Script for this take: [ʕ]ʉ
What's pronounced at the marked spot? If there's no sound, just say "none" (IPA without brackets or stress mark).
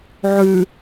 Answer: ʕ